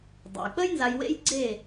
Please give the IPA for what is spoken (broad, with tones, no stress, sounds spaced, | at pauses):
dˤ o̰˩ j k͡p ə˥ j n z a˧ j w ḛ˥ j ɡ͡ǀ eː˥˩